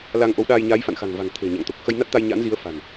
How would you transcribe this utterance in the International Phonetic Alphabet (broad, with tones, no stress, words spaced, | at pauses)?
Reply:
la˧ŋʔo˨˦wɗaː˧j ɲaː˨˦jfa̰˧˨nxa̤˨˩ŋva̤˨˩ŋ t̪ʰe̤˨˩ɲa̰˧˨ŋ t̪o˨˩k̚ xə˧jna˦˥t̚t̪a˧j ɲa̰˧˥nzi˨˦ə̯fa̤˨˩n